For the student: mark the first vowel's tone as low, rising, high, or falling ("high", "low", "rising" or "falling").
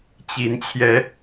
rising